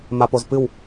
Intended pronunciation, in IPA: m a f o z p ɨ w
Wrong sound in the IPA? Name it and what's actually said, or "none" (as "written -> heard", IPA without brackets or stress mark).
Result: f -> p